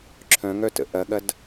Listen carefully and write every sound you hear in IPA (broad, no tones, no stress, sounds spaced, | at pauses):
ǁʰ œ̃ ŋ œ t ə̰ ʔ ɐ ɠ ɐ d